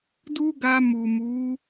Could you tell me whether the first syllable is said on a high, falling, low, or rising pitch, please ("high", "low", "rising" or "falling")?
high